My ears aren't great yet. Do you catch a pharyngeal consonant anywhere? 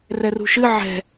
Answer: yes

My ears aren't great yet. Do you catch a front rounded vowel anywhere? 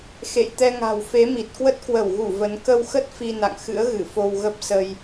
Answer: no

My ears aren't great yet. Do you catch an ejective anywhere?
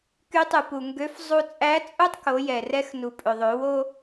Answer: yes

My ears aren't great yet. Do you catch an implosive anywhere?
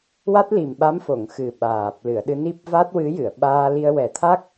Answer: yes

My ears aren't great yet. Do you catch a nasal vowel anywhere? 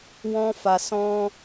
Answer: yes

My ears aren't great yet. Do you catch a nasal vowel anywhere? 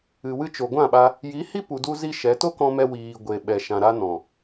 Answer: yes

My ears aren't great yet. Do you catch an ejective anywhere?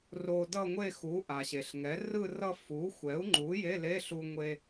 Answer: no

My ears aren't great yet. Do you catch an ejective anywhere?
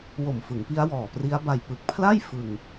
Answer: no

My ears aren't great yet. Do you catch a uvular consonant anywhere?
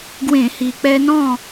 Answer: no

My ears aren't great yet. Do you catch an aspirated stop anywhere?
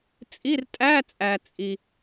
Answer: no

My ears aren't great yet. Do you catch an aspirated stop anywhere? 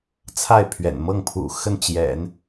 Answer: yes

